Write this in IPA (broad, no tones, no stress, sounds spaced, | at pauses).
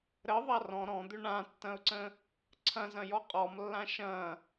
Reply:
ɾ ə ðˤ a r ɔ̃ ɾ ɔ̃ d̪ ʏ ɳ ã tː ɐ̃ ʊ̯ ǀ ə̃ | ǀʰ ɐ̃ z ɐ̃ j ɔ qʼ ɔ m lː ã ʃ ɐ̃